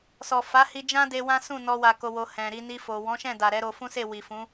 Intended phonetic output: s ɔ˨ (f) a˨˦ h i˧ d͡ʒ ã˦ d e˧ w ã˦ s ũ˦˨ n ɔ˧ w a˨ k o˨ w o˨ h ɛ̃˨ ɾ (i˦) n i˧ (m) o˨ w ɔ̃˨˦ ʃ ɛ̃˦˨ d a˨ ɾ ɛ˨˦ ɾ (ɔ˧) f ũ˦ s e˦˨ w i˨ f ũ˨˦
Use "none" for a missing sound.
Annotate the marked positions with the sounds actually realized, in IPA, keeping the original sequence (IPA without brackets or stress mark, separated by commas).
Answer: f, i˧, f, o˧